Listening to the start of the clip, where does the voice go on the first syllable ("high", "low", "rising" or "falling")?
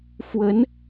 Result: rising